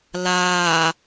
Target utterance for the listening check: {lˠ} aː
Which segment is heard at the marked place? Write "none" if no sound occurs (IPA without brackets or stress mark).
l